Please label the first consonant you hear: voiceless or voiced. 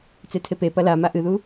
voiceless